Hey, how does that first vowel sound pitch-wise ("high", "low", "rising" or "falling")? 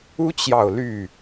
high